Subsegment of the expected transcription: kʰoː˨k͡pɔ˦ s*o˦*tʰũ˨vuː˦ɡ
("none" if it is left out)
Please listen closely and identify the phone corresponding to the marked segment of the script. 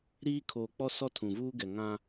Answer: ɔ˦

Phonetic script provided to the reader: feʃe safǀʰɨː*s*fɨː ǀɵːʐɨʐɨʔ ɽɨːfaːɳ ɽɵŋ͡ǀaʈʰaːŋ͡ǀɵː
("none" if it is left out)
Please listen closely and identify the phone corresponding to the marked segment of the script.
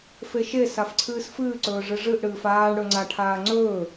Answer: s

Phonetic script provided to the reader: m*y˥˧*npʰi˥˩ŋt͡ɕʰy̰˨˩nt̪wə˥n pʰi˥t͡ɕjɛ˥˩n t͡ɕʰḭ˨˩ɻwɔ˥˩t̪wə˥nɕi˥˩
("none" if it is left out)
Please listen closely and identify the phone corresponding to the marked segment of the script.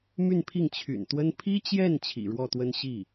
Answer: y˥˧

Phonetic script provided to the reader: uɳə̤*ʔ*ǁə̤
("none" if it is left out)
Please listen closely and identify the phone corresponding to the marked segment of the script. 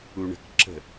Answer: k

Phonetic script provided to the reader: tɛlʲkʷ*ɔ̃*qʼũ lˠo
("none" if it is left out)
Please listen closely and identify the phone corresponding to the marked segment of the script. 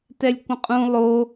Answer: ə̃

